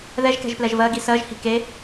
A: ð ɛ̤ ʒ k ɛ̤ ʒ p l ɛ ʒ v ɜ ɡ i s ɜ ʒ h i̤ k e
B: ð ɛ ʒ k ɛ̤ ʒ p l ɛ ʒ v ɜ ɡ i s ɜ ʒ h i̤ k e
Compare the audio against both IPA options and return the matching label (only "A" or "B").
B